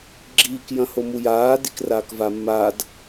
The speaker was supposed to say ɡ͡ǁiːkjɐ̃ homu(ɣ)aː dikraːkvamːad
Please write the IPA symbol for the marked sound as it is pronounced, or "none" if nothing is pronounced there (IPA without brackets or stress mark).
j